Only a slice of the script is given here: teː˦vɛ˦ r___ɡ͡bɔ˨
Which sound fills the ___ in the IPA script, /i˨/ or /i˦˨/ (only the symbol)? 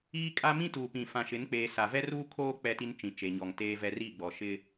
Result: i˦˨